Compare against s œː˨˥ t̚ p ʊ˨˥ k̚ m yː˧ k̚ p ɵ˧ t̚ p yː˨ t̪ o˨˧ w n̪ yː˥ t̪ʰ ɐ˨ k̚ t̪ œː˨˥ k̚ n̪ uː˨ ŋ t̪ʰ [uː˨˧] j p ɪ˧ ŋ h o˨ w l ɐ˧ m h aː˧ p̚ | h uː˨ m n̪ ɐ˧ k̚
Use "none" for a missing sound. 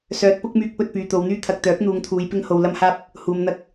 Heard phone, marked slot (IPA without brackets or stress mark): uː˨˧